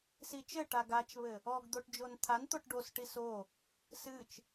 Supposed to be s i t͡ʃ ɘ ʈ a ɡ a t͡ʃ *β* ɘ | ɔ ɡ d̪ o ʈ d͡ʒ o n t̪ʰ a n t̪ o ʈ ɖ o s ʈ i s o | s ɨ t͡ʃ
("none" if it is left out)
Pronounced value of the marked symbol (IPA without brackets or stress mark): β